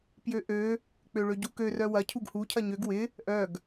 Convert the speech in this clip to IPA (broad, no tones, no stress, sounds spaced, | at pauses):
p j ø ʔ ø | k͡p ø ɭ ø ɟ u k ø r œ w ɐ cʰ u ɡ h u cʰ ɐ ɲ ø ɡ w ɪ | ʔ œ ɡ